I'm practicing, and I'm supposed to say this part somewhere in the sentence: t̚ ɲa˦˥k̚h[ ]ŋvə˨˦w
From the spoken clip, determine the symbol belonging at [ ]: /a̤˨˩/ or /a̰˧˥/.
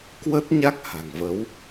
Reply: a̤˨˩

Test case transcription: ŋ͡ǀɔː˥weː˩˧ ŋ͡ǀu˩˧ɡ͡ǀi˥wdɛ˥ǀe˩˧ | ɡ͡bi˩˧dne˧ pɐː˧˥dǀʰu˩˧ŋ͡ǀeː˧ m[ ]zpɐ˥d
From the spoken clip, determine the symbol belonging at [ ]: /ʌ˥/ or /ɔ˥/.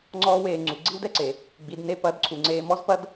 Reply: ɔ˥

